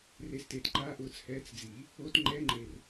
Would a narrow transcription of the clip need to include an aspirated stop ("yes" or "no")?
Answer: no